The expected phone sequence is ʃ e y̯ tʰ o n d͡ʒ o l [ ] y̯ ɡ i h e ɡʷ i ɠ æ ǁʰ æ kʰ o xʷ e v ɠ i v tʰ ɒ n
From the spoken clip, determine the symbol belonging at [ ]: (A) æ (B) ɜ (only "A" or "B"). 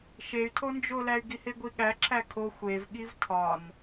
A